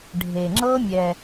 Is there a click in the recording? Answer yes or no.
yes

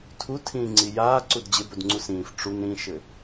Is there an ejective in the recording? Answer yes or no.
no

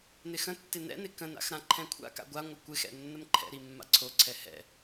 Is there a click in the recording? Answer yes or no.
yes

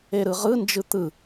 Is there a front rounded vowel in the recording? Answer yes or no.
no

